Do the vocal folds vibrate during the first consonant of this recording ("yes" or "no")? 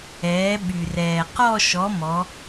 yes